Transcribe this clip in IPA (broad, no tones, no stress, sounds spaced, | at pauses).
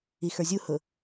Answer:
i x ə˞ zʲ u h ʊ